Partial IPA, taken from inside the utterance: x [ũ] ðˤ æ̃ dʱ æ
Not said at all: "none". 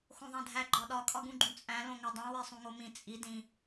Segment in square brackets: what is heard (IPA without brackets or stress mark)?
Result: õ